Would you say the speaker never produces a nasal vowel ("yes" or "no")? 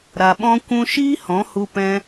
no